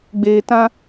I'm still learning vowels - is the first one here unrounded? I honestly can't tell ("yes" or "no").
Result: yes